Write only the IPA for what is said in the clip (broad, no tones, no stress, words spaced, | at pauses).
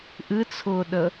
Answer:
ʔɨt͡sʰʊːɗə